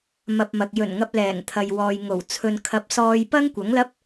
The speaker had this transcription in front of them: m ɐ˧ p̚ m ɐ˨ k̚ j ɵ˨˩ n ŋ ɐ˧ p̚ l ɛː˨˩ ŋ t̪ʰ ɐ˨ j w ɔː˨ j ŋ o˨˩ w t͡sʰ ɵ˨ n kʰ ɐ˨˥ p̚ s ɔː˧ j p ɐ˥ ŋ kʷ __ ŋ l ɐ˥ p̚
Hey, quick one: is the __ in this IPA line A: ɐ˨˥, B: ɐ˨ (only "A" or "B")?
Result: A